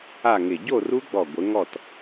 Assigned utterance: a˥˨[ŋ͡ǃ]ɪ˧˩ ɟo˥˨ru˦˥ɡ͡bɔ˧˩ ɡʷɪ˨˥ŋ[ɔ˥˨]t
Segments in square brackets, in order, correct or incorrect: incorrect: ŋ, correct

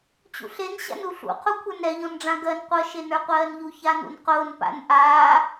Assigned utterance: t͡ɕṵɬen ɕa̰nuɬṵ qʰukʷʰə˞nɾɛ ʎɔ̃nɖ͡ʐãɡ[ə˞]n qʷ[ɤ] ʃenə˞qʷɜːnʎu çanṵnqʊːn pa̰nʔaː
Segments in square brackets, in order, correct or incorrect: incorrect: ɜ, correct

